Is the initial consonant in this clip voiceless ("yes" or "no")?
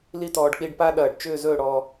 no